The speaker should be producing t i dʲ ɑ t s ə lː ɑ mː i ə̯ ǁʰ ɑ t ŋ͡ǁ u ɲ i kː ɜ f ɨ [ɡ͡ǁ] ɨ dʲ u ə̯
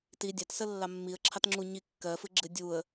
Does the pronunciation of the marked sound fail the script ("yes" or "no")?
no